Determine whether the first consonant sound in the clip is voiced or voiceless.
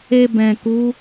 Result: voiced